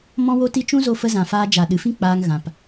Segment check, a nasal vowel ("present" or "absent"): present